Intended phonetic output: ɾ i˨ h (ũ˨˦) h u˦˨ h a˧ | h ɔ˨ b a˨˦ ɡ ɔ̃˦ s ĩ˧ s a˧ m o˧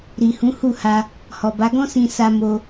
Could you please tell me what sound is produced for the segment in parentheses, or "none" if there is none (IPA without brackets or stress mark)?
ũ˨˦